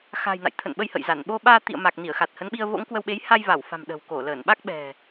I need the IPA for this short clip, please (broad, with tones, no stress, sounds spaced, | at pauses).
x a̤˨˩ j n a̰˧˨ j t̪ʰ ə̰˧˨ n ɓ ə˧ j h ə̰˧˨ j z a˧˩ n ɓ o˧ ɓ aː˧ t̪ ḭ˧˨ ə̯ m a˨˩ k̚ n i˧˩ ə̯ x a˨˩ t̚ h ə˨˦ n ɓ i˧ ə̯ v o̰˧˥ ŋ k w ə˧ w ɓ e˨˦ j h a˧ j v a˧˩ w f a̤˨˩ m ɗ ə̤˨˩ w k o˧˩ l əː˧˩ n ɓ a˦˥ k̚ ɓ ɛ̤˨˩